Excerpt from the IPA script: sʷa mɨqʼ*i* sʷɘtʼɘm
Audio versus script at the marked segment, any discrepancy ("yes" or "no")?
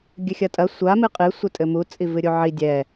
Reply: yes